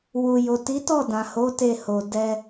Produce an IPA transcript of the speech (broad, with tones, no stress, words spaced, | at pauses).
wu˨jo˨ ti˨˦tɔ˦˨dã˨ho˨˦ te˦˨ho˨ dɛ˧